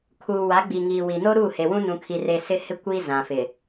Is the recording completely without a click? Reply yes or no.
yes